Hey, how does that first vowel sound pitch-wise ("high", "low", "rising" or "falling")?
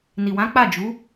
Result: low